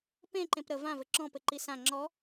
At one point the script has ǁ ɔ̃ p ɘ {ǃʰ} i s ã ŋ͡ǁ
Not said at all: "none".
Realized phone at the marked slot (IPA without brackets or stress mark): ǃ